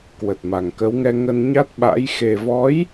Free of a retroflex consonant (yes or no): yes